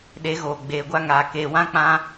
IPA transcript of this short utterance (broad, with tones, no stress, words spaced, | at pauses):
ɗe˨˦ɣoː˨ ɡ͡beː˨ɡʷa˦ŋaː˨ keː˨wã˦k͡pã˦